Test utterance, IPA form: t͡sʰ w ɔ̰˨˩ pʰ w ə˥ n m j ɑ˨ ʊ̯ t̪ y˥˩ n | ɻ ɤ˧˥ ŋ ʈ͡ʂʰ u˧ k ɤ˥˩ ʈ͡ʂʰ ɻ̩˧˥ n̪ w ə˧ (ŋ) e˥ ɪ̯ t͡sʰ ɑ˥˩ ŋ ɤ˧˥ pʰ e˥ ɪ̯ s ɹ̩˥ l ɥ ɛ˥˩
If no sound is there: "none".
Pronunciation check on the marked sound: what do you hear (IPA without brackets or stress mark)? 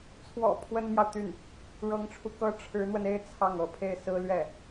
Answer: n